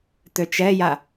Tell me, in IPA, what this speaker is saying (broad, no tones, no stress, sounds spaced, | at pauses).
t̪ ø t͡ʃ ɛ j a